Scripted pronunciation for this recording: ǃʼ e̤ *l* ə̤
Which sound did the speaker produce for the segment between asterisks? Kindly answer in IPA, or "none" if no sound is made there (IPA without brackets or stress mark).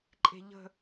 ʎ